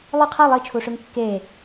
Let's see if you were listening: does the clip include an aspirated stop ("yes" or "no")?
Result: yes